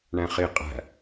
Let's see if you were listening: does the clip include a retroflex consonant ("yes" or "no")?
yes